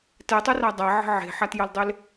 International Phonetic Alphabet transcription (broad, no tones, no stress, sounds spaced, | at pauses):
t ɛ tˤ ʏ r a dˤ a ʕ ə̤ ʕ e̤ ħ a t j ɐ l dˤ ɪ l